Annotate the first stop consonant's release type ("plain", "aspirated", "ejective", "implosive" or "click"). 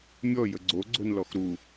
click